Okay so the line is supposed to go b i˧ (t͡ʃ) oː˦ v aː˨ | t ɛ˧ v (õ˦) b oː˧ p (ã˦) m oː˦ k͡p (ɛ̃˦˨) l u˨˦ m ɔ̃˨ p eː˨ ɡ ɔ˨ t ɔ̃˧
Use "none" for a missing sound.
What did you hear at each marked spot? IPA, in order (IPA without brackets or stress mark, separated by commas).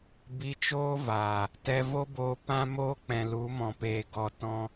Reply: t͡ʃ, o˦, ã˦, ɛ̃˨